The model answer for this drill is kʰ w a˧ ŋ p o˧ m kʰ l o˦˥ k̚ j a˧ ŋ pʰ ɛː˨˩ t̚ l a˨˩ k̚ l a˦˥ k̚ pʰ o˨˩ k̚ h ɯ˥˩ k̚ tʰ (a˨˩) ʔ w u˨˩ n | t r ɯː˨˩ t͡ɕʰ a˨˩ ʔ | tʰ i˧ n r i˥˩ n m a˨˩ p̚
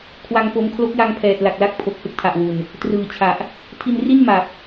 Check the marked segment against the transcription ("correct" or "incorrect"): correct